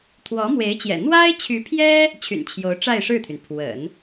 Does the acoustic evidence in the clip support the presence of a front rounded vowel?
yes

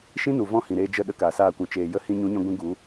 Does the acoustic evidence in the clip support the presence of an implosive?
yes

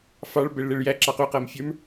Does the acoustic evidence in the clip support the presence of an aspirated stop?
no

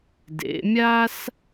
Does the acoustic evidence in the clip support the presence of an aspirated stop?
no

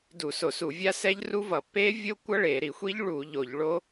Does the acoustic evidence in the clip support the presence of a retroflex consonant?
yes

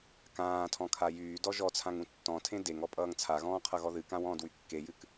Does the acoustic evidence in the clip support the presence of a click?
no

